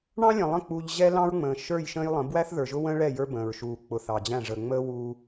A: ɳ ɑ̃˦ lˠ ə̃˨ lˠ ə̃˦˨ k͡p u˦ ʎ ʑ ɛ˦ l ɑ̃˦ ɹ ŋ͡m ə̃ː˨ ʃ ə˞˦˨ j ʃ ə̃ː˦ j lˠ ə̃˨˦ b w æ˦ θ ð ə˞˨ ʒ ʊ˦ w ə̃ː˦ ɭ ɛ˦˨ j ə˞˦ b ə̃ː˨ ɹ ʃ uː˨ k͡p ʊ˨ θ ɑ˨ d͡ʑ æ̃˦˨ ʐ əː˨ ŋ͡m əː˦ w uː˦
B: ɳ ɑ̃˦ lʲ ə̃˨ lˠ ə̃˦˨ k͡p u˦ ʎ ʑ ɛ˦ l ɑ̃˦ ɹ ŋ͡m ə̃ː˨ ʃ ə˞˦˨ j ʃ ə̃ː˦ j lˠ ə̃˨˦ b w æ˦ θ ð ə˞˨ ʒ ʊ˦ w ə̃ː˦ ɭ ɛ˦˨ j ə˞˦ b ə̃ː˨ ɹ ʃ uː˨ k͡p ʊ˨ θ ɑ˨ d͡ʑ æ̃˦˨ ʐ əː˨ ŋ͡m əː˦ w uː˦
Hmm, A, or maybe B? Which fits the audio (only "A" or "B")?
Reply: B